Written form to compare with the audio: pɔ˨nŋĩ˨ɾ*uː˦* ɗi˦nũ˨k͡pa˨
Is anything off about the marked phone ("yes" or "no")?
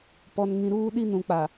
no